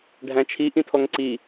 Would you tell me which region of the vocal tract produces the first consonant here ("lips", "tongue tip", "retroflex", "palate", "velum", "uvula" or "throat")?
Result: retroflex